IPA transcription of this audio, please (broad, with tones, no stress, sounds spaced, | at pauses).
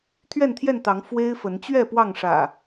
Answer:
t̪ʰ ɥ ɛ˥˨ n t̪ʰ j ɛ˥˨ n t̪ ɑ˨˦ ŋ f w e˦ ɪ̯ f ə˨˦ n t͡ɕ ɥ ɛ˥˨ p w ɑ˥˨ ŋ ʂ ä̰˨˩